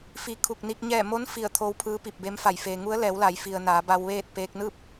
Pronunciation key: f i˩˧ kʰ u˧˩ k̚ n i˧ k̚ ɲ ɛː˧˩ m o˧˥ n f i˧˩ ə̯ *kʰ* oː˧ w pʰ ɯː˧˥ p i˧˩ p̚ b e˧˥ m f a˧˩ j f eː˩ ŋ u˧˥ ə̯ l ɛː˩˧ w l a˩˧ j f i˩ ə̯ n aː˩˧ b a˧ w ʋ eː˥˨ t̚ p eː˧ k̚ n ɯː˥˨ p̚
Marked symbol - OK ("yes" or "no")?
no